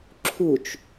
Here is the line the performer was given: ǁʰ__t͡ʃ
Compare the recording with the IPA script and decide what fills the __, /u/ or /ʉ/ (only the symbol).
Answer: u